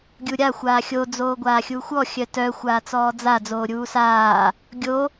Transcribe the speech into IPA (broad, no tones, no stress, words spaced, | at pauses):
ɡʲuɾʲa xʷaːxʲo d͡zoːɡʷaːxʲuːxʷɔ xʲœtœ xʷaːt͡sɔːd͡za d͡zoːɾʲuːsaː | ɡʲo